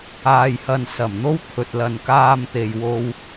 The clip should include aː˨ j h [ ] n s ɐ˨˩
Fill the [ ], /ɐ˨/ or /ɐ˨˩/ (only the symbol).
ɐ˨